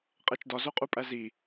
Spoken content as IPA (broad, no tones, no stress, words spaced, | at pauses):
qʼet͡ʃdɒ zoqʼupʼæzi